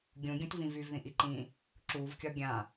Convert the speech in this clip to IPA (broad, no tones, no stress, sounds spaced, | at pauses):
ɡʲ ũ ɡʲ ũ t v ĩ v y v ð ĩ ʔ i ǃ ĩː | ǁ u v kʲ ɒ ɡʲ ã